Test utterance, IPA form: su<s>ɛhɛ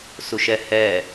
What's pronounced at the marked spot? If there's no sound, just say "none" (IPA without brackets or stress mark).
ʃ